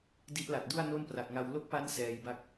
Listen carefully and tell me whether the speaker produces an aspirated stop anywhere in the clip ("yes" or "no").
no